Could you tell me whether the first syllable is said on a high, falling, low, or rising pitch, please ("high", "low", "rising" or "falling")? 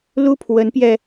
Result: high